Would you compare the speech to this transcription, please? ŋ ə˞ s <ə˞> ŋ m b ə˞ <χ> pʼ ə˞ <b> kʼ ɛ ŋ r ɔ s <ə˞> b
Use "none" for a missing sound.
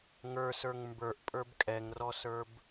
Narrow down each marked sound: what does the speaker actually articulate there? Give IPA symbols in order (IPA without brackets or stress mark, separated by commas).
ə˞, ʔ, b, ə˞